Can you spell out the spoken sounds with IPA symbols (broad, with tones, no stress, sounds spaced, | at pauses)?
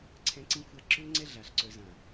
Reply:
ǀʰ ɛ̃˦ ǀ ĩ˦ xʷ a˦ ǁ ø˦ ŋ͡ǀ ɛ˦ ɮ a˨ ɬ ǀ œ˨ z ã˨